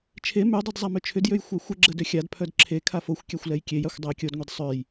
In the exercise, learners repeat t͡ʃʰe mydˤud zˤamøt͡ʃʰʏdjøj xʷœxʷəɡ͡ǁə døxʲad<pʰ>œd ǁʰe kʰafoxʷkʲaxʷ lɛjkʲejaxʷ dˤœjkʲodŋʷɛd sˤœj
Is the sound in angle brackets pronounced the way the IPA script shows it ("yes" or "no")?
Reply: yes